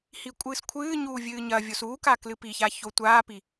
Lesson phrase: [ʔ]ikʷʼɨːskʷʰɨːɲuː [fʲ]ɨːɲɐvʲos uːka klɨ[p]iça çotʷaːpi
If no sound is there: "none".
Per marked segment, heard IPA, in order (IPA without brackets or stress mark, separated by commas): h, vʲ, p